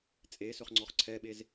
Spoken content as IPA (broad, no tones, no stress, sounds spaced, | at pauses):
t͡sʼ e s ɵ χ ŋ͡ǀ ɔ χ ǀʰ ɛ ɓ e z